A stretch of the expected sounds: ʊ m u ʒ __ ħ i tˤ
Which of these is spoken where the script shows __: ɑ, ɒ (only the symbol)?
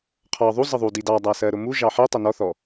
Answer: ɑ